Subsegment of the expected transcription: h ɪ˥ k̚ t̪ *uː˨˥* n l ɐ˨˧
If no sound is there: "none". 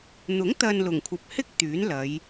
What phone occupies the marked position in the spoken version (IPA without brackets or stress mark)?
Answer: yː˨˥